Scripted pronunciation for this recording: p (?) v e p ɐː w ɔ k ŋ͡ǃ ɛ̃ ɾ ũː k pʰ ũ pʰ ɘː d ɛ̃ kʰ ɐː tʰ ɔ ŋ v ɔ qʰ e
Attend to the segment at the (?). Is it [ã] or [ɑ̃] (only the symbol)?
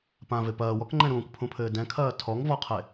ã